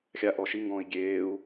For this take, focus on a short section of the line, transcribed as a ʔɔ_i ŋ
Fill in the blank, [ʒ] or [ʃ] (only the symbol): ʃ